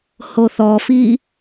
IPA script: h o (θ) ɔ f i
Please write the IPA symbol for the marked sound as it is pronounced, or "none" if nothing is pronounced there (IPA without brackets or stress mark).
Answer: θ